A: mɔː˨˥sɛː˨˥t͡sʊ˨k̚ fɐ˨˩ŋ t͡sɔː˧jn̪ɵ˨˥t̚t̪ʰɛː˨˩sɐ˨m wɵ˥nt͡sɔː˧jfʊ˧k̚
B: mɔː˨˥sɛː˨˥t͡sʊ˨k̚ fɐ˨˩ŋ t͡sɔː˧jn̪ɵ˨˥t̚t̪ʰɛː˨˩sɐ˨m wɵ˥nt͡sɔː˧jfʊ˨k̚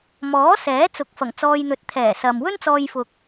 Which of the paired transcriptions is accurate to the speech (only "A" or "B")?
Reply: B